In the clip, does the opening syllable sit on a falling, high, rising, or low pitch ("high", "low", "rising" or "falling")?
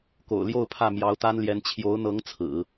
low